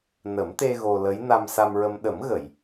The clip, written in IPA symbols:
n ə˨˩˦ m t̪ e˧ ɣ o˧ l ə˧˥ j n a˧ m s a˧ m ɹ ə˧ m ɗ ə˨˩˦ m ɣ ə˨˩˨ j

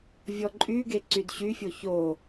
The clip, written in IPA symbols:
vʲ ɔ ǃʼ y ɡ e ǀ y d ɕ y fʲ o ç o

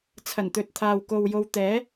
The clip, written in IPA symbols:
t͡sʰ ɐ˨˩ n t̪ ɵ˨ t̚ t̪ʰ aː˨ w k o˨ w j o˨˧ w t̪ ɛː˨˥

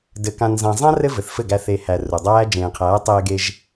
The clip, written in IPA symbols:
d ɘ˧ k ã˧ n z ã˧ zˤ ã˦ r ɘ˦ v ɘ˨ θ f ɘ˦˨ ɡ æ˧ θ e˨ h æ˨ r u˨ dˤ æː˦ d͡ʒ ẽː˨ qʰ æː˨˦ tˤ eː˧ ɡ e˧ ʒ

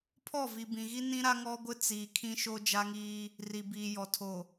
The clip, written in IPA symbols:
pʰ ɔ˦˨ v i˨ b ĩ˨ ɣ i˦ n ĩ˦ ɾ a˦ ŋ ɔ˦ ɡʷ ɪ˦ t͡s i˨ kʰ ĩ˦ ʃ o˦ d͡ʒ a˦ ŋ iː˦ | r i˨ b iː˨ j ɔ˨ tʰ o˨

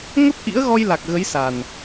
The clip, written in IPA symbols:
ŋ ə˦˥ p̚ ʔ ḭ˧˥ ə̯ ɣ ɔ˧ j l a˨˩ k̚ ɣ ə˨˦ j s a˨˩ n

